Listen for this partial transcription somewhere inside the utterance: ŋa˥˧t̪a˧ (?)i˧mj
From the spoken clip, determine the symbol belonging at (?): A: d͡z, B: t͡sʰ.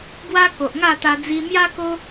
A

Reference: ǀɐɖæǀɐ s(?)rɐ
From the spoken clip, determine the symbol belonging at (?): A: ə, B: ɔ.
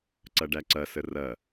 A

